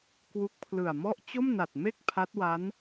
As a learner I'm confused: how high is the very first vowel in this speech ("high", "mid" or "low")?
high